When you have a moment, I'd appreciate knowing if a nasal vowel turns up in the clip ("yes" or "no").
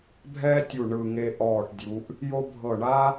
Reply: no